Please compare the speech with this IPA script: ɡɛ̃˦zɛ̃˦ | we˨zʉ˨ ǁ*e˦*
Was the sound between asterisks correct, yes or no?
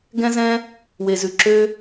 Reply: no